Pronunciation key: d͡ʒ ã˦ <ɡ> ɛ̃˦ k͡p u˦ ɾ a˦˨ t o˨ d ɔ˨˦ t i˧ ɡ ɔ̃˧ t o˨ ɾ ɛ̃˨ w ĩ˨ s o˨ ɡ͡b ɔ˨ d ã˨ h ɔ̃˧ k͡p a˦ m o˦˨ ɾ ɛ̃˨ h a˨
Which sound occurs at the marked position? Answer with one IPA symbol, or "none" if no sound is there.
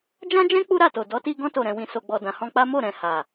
d͡ʒ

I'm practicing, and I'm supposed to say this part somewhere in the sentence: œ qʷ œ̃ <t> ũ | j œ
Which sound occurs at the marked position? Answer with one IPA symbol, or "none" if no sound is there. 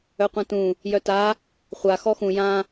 t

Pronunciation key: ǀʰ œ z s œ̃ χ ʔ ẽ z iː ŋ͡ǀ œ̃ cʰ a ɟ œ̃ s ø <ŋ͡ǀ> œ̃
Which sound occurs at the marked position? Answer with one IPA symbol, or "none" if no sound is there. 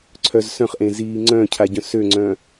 ŋ͡ǀ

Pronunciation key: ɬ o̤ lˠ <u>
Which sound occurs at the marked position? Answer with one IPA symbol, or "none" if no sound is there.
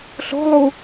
u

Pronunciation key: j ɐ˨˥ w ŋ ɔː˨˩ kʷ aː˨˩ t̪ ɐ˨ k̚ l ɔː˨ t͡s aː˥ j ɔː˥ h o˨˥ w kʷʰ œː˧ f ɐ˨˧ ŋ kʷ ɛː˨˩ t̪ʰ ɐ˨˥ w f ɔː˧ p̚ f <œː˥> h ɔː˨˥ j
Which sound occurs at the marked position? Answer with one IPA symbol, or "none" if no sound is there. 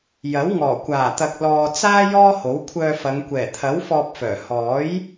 œː˨˩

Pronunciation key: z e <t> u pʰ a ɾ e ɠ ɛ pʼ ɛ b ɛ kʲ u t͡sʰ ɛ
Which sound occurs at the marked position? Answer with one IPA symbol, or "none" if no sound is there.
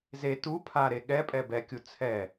t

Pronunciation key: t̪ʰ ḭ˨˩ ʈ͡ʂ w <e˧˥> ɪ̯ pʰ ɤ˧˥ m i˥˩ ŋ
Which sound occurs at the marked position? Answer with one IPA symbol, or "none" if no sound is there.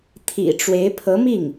e˧˥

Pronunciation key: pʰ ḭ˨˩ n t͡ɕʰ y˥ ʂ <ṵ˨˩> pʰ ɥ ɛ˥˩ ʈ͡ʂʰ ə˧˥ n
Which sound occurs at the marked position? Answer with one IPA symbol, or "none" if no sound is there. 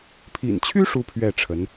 u˥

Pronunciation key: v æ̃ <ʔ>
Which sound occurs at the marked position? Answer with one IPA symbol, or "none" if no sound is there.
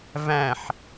ħ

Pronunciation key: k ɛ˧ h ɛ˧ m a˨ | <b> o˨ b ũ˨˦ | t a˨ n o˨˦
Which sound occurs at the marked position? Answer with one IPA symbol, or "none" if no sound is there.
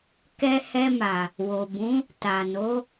w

